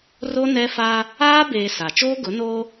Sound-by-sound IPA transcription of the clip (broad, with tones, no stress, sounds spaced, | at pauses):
r o˦ n ɛ˦ f a˦ | aː˦ b eː˨ s a˨ t͡ʃ oː˦ ɡ ʊ˨˦ n oː˦